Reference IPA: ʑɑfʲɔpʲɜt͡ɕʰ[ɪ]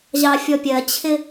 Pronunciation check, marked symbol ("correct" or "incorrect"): correct